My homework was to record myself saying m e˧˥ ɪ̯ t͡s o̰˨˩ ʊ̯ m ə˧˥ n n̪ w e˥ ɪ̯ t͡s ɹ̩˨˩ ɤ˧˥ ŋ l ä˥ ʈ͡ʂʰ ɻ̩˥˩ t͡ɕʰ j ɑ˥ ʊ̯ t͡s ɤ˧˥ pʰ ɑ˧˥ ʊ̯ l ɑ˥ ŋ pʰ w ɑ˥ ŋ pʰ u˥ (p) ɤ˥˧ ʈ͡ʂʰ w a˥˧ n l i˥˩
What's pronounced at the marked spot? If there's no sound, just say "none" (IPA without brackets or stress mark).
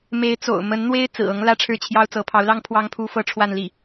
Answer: f